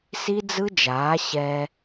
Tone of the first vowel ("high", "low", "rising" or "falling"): high